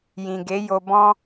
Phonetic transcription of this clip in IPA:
j ĩ˨ ɡ e˨˦ j o˧ b ɔ̃˦

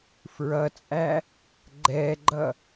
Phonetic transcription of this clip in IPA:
f ɹ ʌ t͡sʼ æ | ɡ͡ǃ ɛ ɡ͡ǃ ʌ

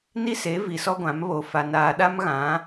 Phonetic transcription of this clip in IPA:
n i˦ s e˨˦ v i˨ s ɔ˦ ɡʷ ã˨˦ m β o˨ f a˨ n aː˨ ɗ a˦ m ɣ ã˨˦

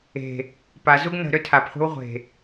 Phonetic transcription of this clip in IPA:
e̤ | p a z u ɡ n ə̤ ɾ ø tʰ a p χʷ e̤ w ʁʷ e̤

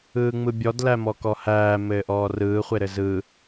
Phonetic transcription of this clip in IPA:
ɯː ŋ͡m ɯ bʲ ɔ d l æ m ɔ k ɔ h æː m ɘː ʔ ɔː r ɯː χʷ e ɾ ɘ z ɯ

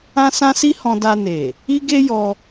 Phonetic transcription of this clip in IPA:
ã˦ s ã˦ s i˦ h ɔ̃˧ d a˧ n e˨ | i˦ ɡ e˦ j ɔ˧

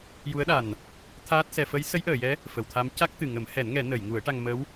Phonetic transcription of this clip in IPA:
j u˧˥ ə̯ ɗ a˨˩ n | t̪ʰ aː˦˥ t̚ s ɛ˧ f ə˧˥ j s ə˧˥ j ʔ əː˨˩˨ j ɛ˧˥ | f ə˨˩˨ w t̪ʰ a˧˥ m c a˦˥ k̚ t̪ ɨ˨˩ ŋ ə˨˩˦ m h ɛ˨˩˦ n ŋ ɛ˨˩˦ n ə˨˩˨ j ŋ u˨˩˦ ə̯ ʈ a˧ ŋ m ə˧˥ w

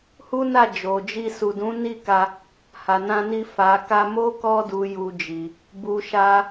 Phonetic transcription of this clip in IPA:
h u˦ n a˦˨ d͡ʒ o˨ d͡ʒ i˧ s u˨ d ũ˨˦ n i˦˨ k a˧ | h a˨ n ã˧ n i˧ f a˨ k a˧ m o˦ k ɔ˧ d u˨ j u˧ d͡ʒ i˨ | b u˧ ʃ a˦

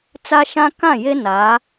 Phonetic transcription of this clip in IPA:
t͡s a˦ ʃ ã˦ k ã˦˨ j e˦ n a˨˦

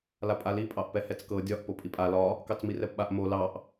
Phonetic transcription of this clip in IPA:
l a pʼ a l i pʼ ɑ ʔ p ɛ h ɛ t͡s k ɤ dʲ ɒ ʔ p o pʼ i pʼ a l ɒ | k ɑ t͡s m i r ɛ p ɓ a ʔ m o l ɑ ʔ

